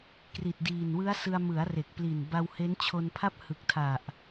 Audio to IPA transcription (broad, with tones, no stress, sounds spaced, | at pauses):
k r i˨˩ t̚ d iː˨˩ n w ɯ˦˥ a̯ s ɯ˧ a̯ m ɯ˩˦ a̯ r e˨˩ k̚ p l i˨˩ n b a˧ w h e˦˥ n t͡ɕʰ o˧ n pʰ a˥˩ p̚ h ɯ˨˩ k̚ tʰ a˨˩ ʔ